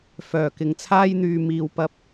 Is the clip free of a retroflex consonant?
yes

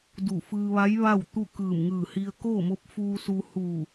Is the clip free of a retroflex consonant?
yes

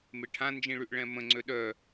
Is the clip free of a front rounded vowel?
no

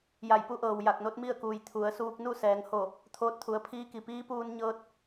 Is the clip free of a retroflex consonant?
yes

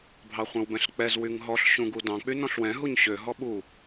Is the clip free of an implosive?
no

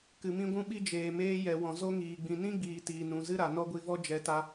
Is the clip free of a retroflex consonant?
yes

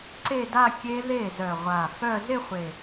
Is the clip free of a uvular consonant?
no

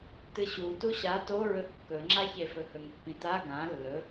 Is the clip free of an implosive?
yes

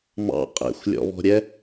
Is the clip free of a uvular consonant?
no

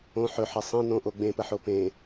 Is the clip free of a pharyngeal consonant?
no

